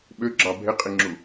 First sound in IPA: ɓ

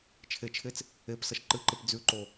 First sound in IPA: t͡ʃʰ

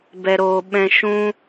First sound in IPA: b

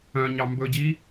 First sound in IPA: œ̃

